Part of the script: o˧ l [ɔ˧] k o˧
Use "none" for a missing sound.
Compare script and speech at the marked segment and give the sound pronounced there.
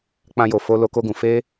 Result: o˧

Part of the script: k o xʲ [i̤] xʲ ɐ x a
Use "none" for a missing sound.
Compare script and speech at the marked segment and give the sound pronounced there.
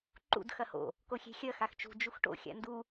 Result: e̤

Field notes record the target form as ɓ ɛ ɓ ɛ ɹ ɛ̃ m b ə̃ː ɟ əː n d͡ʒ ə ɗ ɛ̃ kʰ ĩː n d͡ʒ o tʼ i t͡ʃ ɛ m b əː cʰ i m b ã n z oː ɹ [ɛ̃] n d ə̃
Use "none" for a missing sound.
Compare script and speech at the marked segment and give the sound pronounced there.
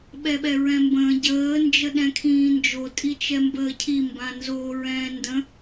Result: ɛ̃ː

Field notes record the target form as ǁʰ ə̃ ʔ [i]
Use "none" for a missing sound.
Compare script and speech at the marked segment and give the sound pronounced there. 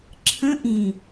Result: ĩ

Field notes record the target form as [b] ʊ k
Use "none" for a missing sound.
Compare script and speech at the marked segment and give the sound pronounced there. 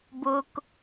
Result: b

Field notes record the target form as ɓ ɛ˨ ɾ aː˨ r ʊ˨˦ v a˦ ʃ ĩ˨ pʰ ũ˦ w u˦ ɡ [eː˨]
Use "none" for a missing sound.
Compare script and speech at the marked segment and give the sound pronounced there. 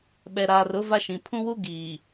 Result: iː˨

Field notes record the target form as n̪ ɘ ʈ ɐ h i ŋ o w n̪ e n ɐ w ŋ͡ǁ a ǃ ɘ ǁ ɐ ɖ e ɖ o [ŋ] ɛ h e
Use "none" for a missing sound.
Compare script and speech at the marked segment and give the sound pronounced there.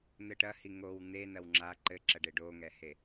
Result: ŋ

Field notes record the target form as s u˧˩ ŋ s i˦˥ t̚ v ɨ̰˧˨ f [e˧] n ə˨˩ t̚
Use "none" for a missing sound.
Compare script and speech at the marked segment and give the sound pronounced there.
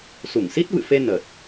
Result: e˧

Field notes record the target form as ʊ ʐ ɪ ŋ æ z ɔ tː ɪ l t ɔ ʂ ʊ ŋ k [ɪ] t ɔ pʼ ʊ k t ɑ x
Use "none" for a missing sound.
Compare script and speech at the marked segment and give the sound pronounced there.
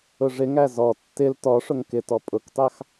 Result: ɪ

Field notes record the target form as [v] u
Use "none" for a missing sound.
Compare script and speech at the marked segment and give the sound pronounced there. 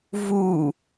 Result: v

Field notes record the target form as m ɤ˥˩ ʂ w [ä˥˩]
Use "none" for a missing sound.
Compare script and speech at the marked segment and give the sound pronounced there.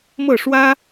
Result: ä˥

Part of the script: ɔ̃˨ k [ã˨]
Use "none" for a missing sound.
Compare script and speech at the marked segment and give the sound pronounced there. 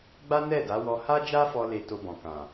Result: ã˨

